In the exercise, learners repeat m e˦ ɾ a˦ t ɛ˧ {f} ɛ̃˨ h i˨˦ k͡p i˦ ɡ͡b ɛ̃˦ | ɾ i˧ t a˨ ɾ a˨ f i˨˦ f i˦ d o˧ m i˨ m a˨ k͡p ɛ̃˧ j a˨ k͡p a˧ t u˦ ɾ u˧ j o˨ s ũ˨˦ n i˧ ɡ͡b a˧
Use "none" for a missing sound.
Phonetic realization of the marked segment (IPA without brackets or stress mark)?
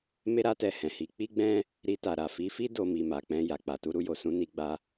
h